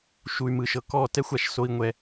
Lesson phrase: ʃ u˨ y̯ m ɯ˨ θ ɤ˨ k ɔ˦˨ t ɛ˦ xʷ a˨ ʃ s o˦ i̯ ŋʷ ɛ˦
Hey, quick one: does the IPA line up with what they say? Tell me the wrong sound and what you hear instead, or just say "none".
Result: θ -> ʃ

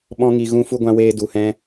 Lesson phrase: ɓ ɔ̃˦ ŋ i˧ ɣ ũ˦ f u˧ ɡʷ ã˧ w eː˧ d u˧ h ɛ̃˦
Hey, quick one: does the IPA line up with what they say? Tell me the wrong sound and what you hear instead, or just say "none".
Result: none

